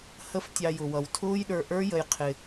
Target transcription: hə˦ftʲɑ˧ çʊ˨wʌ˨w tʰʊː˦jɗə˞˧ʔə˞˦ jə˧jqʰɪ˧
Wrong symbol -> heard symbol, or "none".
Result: ç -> j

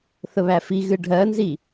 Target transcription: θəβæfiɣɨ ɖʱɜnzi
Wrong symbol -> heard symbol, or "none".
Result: none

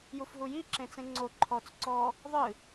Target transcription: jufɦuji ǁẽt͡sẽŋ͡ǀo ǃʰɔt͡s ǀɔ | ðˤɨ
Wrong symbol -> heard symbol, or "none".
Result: none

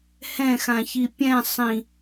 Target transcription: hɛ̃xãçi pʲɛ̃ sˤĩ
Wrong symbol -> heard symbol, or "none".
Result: none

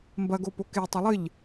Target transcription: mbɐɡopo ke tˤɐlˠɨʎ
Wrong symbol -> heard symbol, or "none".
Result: none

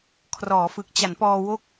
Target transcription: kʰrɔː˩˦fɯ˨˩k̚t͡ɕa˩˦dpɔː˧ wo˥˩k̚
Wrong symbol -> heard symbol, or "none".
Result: d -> n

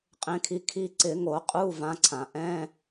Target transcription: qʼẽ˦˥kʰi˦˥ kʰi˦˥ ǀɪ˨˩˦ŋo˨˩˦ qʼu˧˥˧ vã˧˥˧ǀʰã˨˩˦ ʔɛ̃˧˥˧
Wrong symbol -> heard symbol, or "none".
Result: none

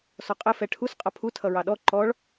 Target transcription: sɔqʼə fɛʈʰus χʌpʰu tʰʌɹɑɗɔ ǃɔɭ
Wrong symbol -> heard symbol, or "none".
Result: χ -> qʼ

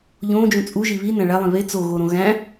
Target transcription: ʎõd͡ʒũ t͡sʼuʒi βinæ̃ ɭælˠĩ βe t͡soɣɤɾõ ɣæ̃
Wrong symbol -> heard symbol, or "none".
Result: ɤ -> o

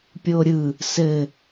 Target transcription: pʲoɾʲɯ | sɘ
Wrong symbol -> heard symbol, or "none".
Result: none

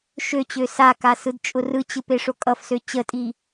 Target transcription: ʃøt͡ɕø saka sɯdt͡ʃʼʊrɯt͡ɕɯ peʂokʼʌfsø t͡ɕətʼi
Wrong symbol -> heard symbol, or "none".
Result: none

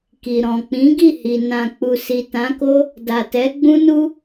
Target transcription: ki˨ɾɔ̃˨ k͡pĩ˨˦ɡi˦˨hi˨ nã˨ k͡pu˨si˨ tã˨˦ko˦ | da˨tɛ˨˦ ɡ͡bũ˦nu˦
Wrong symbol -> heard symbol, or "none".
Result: none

